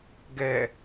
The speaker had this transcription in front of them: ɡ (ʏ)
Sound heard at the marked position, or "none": ɛ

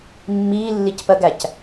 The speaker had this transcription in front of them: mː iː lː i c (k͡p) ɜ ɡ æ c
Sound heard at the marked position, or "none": p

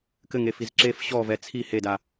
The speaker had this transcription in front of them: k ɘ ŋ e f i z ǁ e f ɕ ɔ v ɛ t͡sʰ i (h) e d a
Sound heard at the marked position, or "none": h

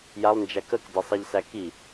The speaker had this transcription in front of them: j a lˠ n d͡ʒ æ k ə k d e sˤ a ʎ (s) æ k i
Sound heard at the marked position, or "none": s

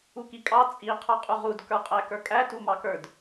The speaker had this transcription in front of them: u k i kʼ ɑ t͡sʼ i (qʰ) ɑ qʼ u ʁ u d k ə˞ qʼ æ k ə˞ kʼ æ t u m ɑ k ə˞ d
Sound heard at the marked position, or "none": qʰ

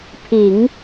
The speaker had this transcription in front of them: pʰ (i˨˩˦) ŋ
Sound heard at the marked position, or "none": i˨˩˦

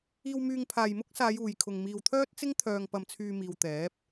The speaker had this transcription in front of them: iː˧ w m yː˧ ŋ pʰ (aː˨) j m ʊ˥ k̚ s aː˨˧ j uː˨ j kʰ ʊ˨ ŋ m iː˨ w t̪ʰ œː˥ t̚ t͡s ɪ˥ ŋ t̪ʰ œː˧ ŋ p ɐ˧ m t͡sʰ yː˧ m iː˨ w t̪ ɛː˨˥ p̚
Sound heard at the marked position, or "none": aː˨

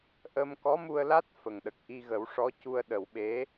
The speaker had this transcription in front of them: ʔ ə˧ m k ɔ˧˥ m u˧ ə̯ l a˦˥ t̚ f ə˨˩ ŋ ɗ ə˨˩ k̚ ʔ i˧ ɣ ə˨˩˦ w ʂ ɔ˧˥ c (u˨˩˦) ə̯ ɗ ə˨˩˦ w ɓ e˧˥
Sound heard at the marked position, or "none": u˧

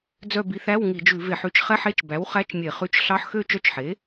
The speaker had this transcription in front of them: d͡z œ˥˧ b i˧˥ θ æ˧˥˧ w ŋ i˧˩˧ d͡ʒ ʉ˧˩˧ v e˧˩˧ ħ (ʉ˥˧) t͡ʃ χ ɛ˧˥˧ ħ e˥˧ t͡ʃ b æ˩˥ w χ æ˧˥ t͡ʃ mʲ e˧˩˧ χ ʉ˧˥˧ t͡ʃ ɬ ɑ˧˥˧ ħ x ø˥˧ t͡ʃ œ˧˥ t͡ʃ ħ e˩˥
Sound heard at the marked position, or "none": ʉ˥˧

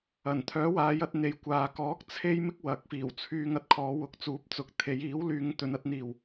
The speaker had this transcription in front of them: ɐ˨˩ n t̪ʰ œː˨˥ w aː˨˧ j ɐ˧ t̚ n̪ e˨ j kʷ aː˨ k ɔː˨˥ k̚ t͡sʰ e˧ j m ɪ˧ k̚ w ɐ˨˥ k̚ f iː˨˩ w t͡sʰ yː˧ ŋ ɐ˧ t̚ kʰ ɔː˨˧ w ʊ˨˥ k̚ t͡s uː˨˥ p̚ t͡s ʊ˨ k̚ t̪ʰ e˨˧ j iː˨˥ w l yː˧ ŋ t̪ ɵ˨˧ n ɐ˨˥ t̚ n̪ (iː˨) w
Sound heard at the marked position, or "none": iː˨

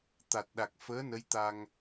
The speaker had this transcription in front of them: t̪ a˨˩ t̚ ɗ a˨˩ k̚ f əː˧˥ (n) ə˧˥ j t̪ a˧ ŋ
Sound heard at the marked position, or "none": n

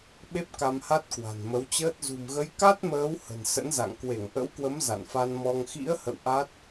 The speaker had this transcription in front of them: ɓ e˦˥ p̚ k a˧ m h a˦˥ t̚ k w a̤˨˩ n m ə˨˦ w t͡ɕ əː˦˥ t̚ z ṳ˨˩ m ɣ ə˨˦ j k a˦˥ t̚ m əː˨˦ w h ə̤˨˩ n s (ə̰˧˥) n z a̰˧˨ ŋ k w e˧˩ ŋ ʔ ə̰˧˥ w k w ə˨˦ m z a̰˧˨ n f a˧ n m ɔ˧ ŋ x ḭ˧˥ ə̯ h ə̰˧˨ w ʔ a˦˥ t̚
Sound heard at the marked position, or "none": ə̰˧˥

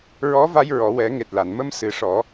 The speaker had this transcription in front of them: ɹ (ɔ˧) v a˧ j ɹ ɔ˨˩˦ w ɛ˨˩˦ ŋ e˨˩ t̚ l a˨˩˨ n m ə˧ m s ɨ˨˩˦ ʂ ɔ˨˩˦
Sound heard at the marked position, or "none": ɔ˧˥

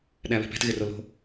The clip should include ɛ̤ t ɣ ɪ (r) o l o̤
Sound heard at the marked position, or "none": r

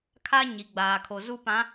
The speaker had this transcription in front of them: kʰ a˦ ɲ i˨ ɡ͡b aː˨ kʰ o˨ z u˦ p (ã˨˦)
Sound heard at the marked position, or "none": ã˨˦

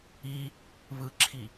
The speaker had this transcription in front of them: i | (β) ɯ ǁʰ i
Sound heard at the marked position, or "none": β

